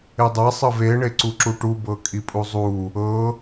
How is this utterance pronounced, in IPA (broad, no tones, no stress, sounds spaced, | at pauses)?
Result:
e dˤ ɛ sˤ ɯ v e ɳ e ǀ u ǁ u ʈ u b ɤ kʼ i pʼ u zˤ u | ɤ